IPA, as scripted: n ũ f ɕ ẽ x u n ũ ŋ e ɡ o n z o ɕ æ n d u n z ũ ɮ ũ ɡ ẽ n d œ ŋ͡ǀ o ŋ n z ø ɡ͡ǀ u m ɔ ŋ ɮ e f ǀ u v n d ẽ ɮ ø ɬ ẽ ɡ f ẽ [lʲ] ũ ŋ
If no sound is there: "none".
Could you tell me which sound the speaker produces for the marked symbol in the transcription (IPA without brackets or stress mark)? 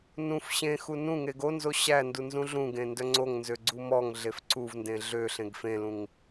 l